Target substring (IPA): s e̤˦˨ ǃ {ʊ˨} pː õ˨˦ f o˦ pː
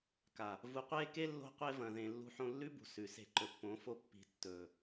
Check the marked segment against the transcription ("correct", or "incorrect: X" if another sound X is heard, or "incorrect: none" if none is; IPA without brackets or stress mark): incorrect: ɵ˨